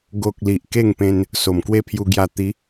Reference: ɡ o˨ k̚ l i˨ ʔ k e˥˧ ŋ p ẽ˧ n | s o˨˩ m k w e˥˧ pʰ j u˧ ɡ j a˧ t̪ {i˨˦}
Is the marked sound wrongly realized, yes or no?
no